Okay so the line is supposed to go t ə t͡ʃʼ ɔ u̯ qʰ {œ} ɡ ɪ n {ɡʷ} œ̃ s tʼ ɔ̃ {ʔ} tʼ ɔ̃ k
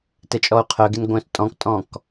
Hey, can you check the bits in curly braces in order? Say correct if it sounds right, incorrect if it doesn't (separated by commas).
correct, correct, incorrect